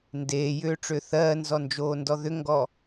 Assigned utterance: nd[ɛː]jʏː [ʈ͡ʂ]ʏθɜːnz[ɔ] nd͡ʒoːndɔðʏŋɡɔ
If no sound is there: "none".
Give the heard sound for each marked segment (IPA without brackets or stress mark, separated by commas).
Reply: eː, ʈ͡ʂ, ɔ